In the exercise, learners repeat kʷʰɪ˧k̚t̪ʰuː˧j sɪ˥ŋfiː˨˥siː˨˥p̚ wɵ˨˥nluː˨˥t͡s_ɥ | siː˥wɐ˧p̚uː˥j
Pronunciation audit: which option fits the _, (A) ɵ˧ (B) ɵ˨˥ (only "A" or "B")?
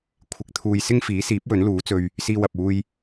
A